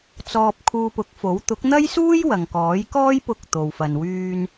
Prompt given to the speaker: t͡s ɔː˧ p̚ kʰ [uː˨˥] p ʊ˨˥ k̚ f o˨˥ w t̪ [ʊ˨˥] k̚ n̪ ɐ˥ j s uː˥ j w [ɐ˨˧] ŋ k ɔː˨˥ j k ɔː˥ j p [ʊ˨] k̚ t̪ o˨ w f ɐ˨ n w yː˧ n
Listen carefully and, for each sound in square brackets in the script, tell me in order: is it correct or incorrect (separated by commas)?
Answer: incorrect, correct, incorrect, incorrect